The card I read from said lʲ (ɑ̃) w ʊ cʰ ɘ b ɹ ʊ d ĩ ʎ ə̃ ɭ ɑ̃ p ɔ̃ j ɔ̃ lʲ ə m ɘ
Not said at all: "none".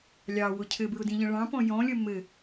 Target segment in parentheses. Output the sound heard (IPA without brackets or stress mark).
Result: ɑ